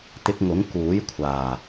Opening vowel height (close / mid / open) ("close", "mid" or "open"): close